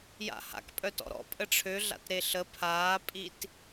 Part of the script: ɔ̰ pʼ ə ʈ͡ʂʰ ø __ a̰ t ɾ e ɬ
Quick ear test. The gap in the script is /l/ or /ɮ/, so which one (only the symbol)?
ɮ